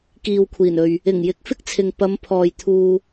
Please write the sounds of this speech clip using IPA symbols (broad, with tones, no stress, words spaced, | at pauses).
kiː˨wkʷʰiː˨˩nɵ˨ɥ | ɪ˨˩ŋjɪ˨˥k̚fɪ˥k̚t͡sʰɪ˨ŋ pɐ˨˧mpʰɔː˨j t̪ʰuː˧